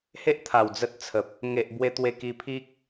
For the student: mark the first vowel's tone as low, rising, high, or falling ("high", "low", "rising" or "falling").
high